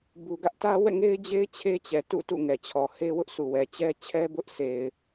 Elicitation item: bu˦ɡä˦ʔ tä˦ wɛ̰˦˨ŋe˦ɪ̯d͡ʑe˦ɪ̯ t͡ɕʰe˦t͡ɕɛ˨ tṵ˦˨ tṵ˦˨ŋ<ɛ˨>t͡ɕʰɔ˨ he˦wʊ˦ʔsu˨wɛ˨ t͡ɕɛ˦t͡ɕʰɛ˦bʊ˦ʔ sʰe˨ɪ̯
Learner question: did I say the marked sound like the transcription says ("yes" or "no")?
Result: yes